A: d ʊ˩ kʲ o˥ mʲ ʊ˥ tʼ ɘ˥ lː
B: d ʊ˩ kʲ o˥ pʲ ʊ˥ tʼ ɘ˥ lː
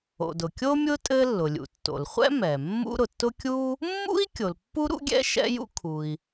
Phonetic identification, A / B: A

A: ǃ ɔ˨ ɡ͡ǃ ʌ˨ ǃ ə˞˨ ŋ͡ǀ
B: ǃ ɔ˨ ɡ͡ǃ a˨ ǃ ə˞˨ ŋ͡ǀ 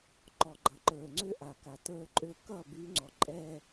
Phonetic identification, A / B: A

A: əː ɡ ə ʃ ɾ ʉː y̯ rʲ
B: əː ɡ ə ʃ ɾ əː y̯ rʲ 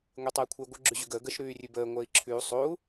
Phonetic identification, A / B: A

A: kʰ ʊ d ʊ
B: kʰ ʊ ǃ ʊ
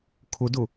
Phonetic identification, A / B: A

